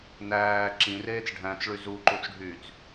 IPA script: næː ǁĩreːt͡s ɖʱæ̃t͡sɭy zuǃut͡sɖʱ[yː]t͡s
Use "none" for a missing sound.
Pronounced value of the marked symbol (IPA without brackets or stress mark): yː